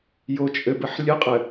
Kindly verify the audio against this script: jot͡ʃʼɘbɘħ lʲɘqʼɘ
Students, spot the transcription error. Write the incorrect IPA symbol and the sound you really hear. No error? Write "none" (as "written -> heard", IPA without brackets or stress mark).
none